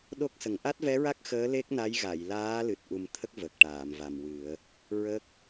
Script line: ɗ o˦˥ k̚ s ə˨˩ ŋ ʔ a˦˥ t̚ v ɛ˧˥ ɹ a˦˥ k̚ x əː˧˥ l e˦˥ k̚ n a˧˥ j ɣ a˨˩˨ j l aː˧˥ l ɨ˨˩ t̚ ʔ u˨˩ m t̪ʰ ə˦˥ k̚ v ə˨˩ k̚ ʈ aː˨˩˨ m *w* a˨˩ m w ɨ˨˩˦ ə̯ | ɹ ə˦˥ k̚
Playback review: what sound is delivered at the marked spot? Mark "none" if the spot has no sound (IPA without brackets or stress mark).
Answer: v